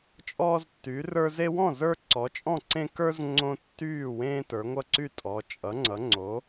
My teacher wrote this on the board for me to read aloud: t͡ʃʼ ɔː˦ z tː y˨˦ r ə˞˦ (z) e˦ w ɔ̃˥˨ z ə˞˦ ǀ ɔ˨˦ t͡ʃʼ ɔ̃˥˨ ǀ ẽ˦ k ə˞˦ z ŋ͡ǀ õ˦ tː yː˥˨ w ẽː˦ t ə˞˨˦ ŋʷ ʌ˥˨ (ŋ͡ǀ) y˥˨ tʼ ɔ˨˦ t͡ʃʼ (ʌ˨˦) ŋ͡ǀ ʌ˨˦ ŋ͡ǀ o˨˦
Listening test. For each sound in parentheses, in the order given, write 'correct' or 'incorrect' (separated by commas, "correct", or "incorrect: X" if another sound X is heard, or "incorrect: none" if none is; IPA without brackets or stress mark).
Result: correct, incorrect: ǀ, correct